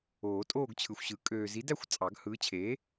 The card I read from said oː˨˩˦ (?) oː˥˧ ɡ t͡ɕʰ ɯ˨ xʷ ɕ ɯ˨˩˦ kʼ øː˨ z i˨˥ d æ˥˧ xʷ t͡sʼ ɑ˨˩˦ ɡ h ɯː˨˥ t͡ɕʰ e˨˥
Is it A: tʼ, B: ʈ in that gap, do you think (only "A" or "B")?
A